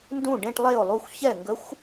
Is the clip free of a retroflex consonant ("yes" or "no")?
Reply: no